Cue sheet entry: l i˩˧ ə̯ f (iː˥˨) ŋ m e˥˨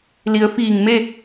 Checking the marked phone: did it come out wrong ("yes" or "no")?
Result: yes